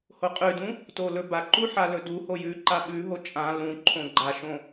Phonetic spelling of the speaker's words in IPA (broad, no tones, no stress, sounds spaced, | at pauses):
h o qʼ ʉ d ũ | t o l ɵ b a ǃ u ħ a l ɵ d u h o j ʉ ǃ a ɓ ʉ ɦ o t͡ʃʼ ã l ũ ǃʰ õ ɡ͡ǃ a ʃ õ